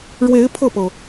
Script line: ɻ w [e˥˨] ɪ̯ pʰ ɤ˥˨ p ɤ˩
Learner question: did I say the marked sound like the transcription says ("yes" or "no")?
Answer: no